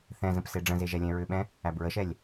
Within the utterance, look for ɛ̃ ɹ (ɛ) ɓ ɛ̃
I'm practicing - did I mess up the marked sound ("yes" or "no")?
yes